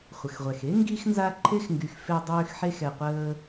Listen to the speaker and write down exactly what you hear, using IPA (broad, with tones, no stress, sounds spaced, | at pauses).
χʷ ə˨ x ʁʷ ɛ˨ x e˦ ŋ ɡ i˧ x n z a˧ ǃʰ e˦ x ŋ ɡ y˨ x f e˧ dˤ øː˧ x ħ e˧ x ɛ˨ qʷ əː˧